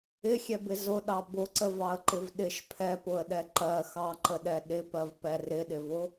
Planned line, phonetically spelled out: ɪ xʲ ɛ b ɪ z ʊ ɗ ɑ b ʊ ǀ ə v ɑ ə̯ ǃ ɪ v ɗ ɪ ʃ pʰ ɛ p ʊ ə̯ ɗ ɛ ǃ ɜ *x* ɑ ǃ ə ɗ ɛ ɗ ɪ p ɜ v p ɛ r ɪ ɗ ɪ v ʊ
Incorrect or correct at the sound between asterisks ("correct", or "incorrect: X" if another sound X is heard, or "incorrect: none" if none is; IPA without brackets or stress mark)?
correct